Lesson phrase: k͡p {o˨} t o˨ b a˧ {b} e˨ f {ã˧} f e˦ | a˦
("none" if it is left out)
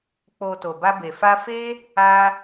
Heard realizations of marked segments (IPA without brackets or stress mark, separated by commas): o˨, b, a˧